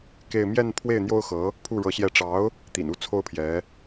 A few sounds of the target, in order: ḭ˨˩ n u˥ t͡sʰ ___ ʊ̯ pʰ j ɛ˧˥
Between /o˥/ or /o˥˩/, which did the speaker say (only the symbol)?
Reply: o˥